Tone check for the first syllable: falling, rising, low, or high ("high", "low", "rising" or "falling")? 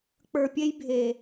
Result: low